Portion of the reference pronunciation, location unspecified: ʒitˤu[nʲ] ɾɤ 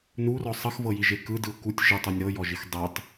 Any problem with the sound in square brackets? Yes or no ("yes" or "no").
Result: no